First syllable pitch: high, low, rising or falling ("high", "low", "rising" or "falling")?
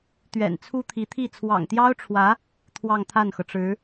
low